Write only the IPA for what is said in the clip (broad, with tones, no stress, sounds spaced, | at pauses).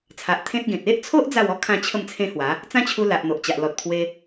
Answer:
t͡sʰ a˨ ʔ t̪ʰ ẽ˦ t̚ ɡ ẽ˨ t̚ e˦ ʔ t͡sʰ o˦ ʔ d͡z a˥˧ w ɔ˦ kʰ ã˥˧ t͡ɕʰ ə˥˧ m t͡sʰ ẽ˦ h w a˨˦ | t͡s ã˦ t͡ɕʰ u˧ l a˨ ʔ n̪ o˨ ʔ t͡ɕ a˨ ʔ l ɔ˨ t̚ pʰ w e˧